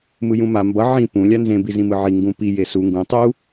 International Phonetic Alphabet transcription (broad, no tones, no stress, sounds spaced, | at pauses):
m ɯ j ũ m a m b ʌ ʕ ĩ p ũ lʲ a n z ẽ b i z ĩ m ɯ ʕ i ŋ ɡ ũ p i j e s u ŋ ɡ ũ tˤ u